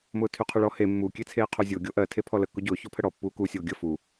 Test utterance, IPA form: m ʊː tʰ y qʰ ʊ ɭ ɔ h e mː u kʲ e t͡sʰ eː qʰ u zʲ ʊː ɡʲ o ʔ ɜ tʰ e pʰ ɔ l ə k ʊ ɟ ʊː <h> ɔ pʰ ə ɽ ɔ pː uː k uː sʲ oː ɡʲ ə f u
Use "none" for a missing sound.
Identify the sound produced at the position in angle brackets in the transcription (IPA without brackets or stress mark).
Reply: ç